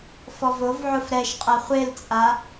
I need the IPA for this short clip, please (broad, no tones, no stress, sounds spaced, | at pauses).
f ɔ v o v ʕ ʊ f ɾ ɛ ʃ qʼ ɐ χʷ e l t͡sʼ a